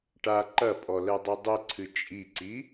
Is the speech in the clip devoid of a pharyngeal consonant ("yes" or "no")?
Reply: yes